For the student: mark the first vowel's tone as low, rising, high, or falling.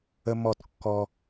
high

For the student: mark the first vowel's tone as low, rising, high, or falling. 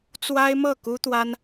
high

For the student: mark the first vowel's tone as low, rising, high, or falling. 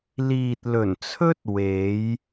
low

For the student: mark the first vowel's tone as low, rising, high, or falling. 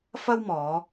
high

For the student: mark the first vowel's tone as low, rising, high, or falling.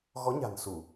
rising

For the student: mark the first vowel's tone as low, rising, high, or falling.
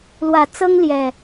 rising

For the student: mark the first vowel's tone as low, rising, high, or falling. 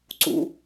rising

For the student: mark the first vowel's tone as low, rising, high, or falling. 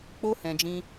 high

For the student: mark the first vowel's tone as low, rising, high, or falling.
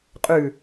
falling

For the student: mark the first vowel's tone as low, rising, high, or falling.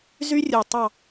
high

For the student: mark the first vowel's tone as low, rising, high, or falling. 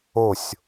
falling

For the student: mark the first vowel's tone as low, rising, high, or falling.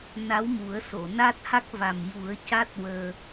rising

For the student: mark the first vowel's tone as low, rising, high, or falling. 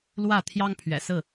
falling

